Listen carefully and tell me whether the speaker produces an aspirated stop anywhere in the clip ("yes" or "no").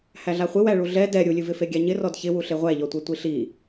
no